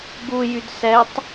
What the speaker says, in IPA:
ɡ u j y d s ɛ tˤ

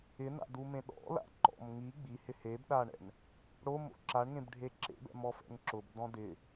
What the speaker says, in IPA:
ɪ n a̰ d u m ẽ ɗ ɔ̰ l a̰ ǃ ɔ̰ m ŋ i ɡ͡b i h ɪ h e b ɗ a ɳ ɛ̰ n | ɽ o m o̰ ǁ a ɳ ŋ ẽ b ɖʱ e ǁ ḛ b ɛ̰ m ɔ f ɛ̰ ŋ ǁ ʊ b d ɔ̃ d ɪ

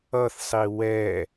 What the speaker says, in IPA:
ʌ θ sˤ i w ɛ

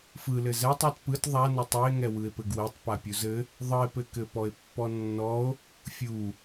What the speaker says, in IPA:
f ɯ l ɘ z ɛ tˤ ɔ t p ɯ t ðˤ a n ɘ tˤ ɘ e̯ ŋ ɛ w ɯ e̯ p ɘ ɡ w ɛ tˤ p a pʲ u z ɘ | ðˤ ɯ e̯ p ɘ k ɘ p ɔ e̯ pː ɔ nː ɔ o̯ | fʲ u

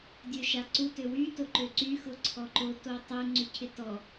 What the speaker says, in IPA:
dʲ ø ʃ a ǀ u t ø w y t o ǃ ø ǀ y x ʊ ǀʰ ɔ ǃ o t o tˤ ø ŋ͡ǀ y cʰ ɪ t ɔ

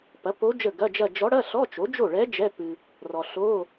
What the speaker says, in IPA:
p ɐ˩˥ p o˧˥ d͡ʒ ə˥˩ ɡ ɐ˧˥˧ d͡ʒ ɐ˥˧ d͡ʒ ɔ˧˥ ɽ ɐ˧˥˧ ɬ ɔ˧˥˧ t͡ʃ o˩˥ d͡ʒ o˥˩ ɭ ɛ˧˥ d͡ʒ ɛ˧˥˧ p ɨ˨ | r ɔ˨ ɬ o˧˥˧

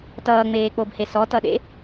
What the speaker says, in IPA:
t ʌː ŋ͡m eː k͡p o b h e s ɔ t ʌ ɗ ḛ

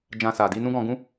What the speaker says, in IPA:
d͡ʒ ã˧ s a˨ d i˧ n ũ˦ ɡ ɔ̃˧ ɡ ũ˦

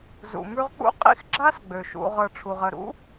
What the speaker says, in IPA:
z ṵ˩ m ʉ˦ ʁ k͡p ṵ˥ qʼ ḭ˥ x ɡ͡ǁ a˥ s ɡ͡b ø˩ ʃ ṵ˨ ʁ ɤ˨ ʈ͡ʂʰ u˩ ʁ ə˨ ɾ ṵ˥

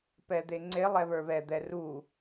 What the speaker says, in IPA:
p ɛ d̪ e ŋ͡ǀ e lˠ ɛ β ə˞ β ɛ d̪ ɛ r u

